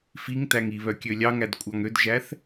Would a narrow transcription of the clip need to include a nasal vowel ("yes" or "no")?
no